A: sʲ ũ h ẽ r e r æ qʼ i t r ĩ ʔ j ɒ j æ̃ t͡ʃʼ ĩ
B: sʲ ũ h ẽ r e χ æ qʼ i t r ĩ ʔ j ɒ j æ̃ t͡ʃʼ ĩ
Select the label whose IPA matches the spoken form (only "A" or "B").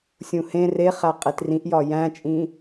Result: B